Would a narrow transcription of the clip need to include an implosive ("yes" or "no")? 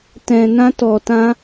no